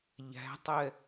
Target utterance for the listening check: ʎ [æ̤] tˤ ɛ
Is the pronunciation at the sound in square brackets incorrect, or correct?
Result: correct